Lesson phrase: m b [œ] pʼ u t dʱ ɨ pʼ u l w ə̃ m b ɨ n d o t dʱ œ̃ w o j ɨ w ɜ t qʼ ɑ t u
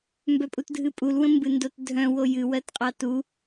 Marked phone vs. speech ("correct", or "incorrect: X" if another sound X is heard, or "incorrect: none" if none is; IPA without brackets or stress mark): correct